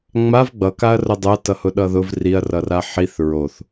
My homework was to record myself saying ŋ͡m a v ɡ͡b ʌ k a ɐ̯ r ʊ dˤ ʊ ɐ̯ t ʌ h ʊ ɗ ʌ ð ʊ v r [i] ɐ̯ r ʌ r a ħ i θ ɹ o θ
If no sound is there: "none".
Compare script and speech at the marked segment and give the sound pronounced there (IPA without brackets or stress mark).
i